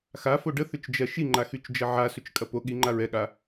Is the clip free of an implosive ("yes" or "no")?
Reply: no